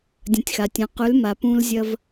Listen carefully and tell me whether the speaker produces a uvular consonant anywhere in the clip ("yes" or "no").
yes